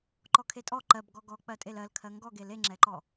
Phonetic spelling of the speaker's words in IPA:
ǃ ɔ kʰ e tʼ ɔ ǃ ɜ b ɡ ɔ ɡ ɔ k͡p ɜ tʼ e l ɜ l kʰ ɜ ŋ ɡ ɔ ɡ e l e ŋ͡ǁ ɛ ǃ ɔ

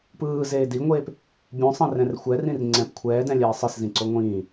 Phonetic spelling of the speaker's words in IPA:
p ɯː z eː d i ŋʷ eː p | bʲ ũ sˤ ẽ r ɛ̃ r xʷ ɛ r ĩ r ŋ͡ǀ ɛ̃ p kʷʰ ɛː d ɛ̃ lʲ ɛː sˤ ɯ s z ĩ ǀ o ŋʷ ĩː

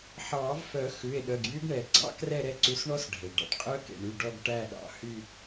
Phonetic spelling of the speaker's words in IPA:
ħ ɑː˨˩˦ v f œ˨˩˦ x ʉ˩˧˩ e̯ ɗ œ˩˧˩ ɡ j y˦˥ ɡ ɳ ɛ˩ ɡ͡ǀ ɑ̰˦˥ k r ɛ˦˨ ɾ ɛ˦˨ ǀ ʉ˨˦ s ɳ ɔ˦˥ s ɖʱ e˩ ɖ ɑ̰˩ ʈ qʼ œ˦˥ k ḛ˩ ɳ y˩˧˩ ɖ ɔ˦˨ ɡ ʈ æ˦˨ ɗ ɑ̰˩˧˩ h y˦˨

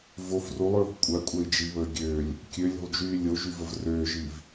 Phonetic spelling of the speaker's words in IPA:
v o f r u lˠ ɹ o̤ kʷʼ a kʷʼ ɛ i̯ d͡ʒ i β əː ɡʲ øː lʲ | kʲ ø lʲ o̤ lˠ d͡ʒ yː lʲ o ʒ y v ə v r øː ʒ iː v

